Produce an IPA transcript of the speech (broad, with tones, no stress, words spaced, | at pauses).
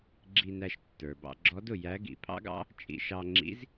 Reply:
ɡ͡ǁi˧næ˧ʃ tːə˞˩bɑ̰˧ɡ͡ǁɔ˧˥dʊ˩ jæ˧˥ɡḭ˩ pʰɑ̰˥ɡɑ̰˥ | t͡ʃʼḭ˧ʃɑ˧ŋ͡ǁḭ˧˥z